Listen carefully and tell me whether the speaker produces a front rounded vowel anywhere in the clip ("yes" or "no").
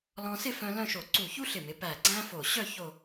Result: yes